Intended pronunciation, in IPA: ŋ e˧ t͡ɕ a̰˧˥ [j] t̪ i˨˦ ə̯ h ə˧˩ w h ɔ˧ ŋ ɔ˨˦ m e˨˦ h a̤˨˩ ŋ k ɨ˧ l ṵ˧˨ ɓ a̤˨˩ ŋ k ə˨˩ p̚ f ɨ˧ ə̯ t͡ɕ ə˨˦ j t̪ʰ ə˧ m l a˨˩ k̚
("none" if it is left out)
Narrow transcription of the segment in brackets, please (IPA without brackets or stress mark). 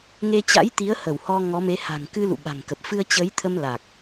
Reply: j